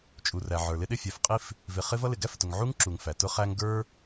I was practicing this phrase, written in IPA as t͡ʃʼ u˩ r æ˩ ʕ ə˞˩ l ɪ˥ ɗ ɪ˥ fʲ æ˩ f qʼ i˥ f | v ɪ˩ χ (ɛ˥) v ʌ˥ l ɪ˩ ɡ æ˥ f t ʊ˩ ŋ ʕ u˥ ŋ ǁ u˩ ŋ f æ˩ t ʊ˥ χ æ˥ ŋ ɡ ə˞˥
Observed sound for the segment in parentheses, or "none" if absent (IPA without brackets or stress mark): ɪ˥